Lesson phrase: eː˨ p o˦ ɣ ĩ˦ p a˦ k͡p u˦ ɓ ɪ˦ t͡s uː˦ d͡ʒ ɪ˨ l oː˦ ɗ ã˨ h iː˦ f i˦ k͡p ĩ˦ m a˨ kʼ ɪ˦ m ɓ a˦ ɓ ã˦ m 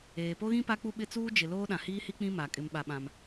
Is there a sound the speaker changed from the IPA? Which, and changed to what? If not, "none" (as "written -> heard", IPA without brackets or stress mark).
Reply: f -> h